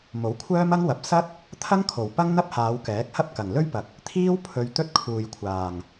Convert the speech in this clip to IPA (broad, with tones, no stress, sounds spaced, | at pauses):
m o˨˥ w kʷʰ œː˥ m ɐ˥ ŋ w ɐ˨ p̚ s ɐ˥ t̚ | t̪ʰ ɐ˥ ŋ kʰ o˨˩ w p ɐ˥ ŋ n̪ ɐ˥ p̚ h aː˨˧ w k ɛː˨˥ k̚ h ɐ˥ p̚ k ɐ˨˩ ŋ l ɵ˥ ɥ p ɐ˨ k̚ | t̪ʰ iː˥ w pʰ ɵ˧ ɥ t̪ ɵ˥ t̚ kʰ uː˨ j kʷʰ aː˨˩ ŋ